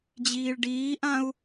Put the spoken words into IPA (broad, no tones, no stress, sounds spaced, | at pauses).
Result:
d͡ʑ iː ɭ ɖ iː ʔ ã u̯